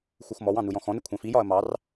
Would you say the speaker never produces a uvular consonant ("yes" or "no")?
yes